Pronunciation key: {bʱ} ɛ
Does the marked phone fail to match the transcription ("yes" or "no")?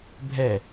no